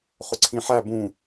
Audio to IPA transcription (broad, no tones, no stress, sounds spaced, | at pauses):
χ ʊ ǀʰ ĩ ħ æ b ũ